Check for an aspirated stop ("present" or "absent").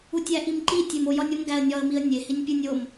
absent